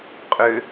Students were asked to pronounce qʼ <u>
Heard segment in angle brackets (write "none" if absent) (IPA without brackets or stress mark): ø